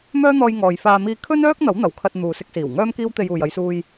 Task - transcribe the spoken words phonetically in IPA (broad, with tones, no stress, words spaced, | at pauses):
mœː˥n̪ɔː˧j ŋɔː˨jfaː˧ miː˧ kʰɵ˥nœː˥k̚ n̪ɐ˨˥w n̪ɐ˨w kʰɐ˧t̚ n̪uː˨sɪ˧k̚siː˨˩w ŋœː˥mkiː˥w t̪e˧juː˨jɐ˨˧jsuː˧j